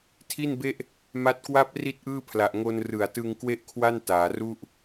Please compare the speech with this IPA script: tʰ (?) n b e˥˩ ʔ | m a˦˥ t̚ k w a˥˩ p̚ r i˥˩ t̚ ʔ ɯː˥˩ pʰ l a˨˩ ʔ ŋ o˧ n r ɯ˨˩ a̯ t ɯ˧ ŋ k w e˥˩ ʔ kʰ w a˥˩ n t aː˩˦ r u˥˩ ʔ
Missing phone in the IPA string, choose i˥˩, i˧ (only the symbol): i˥˩